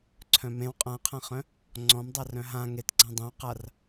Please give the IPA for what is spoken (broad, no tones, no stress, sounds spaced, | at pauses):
ǀʰ œ̃ m ẽ w qʼ ã qʰ ã χ œ̃ | ŋ͡ǀ ɔ̃ m dˤ a r œ̃ ɦ ã ŋ e t ɡ͡ǀ ã dˤ œ̃ w q a r